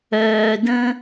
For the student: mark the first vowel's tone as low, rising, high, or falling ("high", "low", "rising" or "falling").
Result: low